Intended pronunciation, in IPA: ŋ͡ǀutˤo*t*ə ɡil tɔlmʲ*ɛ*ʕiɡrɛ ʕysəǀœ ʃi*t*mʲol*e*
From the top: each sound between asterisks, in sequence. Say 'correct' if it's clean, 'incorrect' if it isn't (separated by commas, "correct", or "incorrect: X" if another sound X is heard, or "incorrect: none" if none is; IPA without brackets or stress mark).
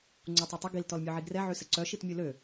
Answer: incorrect: tˤ, incorrect: œ, correct, incorrect: ø